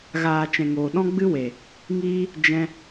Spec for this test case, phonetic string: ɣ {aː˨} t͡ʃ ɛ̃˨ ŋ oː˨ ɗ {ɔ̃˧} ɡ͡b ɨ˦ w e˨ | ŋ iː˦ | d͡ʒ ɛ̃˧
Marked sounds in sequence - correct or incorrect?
correct, incorrect

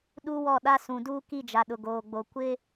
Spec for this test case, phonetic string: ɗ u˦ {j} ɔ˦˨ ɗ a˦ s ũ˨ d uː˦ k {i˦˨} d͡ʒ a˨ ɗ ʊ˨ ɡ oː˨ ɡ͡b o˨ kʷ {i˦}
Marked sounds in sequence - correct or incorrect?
incorrect, correct, incorrect

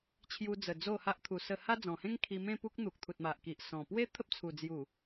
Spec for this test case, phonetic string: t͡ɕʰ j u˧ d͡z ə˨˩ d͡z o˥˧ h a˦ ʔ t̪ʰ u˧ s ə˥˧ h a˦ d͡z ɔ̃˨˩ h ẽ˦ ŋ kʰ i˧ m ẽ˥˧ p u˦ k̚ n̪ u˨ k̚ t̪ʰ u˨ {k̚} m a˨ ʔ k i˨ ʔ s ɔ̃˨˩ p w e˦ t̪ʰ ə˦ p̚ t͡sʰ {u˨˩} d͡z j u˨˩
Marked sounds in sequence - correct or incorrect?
incorrect, correct

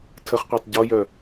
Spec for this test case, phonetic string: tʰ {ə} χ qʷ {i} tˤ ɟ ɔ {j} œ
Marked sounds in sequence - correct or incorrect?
correct, incorrect, correct

